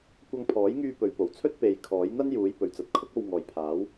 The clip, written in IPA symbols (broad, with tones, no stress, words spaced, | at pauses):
kʷɐ˧ŋpʰɔː˨˥jŋyː˧ pɵ˨˧ɥpo˨˩wt͡sʰɵ˥t̚ pe˨˧j kʰɔː˨˥jn̪ɐ˥n juː˨˥j pɵ˨ɥt͡sɐ˨˥t̚kʰʊ˥k̚o˧w ŋɔː˨jpʰaː˨˥w